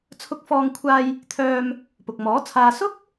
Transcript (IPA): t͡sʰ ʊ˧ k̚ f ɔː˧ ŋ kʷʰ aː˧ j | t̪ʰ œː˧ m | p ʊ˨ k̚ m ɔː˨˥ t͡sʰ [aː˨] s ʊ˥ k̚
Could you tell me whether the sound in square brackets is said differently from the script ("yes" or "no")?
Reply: no